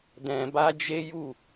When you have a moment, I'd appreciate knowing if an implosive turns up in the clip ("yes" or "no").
no